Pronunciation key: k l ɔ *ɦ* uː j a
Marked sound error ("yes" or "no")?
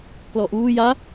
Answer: yes